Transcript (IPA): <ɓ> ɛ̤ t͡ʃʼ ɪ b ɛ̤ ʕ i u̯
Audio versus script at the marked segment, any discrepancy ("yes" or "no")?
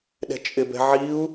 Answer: yes